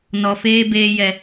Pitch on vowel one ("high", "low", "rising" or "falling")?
low